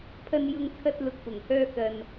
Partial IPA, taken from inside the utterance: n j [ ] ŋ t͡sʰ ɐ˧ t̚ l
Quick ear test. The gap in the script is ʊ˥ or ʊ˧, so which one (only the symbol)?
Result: ʊ˧